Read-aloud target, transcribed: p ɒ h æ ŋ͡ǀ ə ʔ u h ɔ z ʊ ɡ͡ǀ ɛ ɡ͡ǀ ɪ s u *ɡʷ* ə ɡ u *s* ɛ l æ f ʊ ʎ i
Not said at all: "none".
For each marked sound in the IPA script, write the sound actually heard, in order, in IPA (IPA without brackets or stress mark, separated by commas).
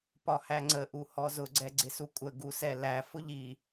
kʷʼ, s